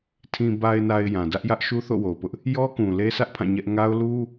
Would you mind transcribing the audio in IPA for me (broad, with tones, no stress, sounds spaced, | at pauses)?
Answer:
tʰ ĩ˨ b a˨ ɪ̯ n a˨ ɪ̯ j ã˨ d ä˦ ʔ j ä˦ ʔ ʃ u˦ θ o̰˦˨ w o˨ ʊ̯ p ʊ˦ ʔ | j ɔ˦ k ũ˨ l e˦ sʰ ä˦ ʔ pʰ ã˦˨ ɲ ɛ˦ ʔ ŋ a˦ ʊ̯ l u˦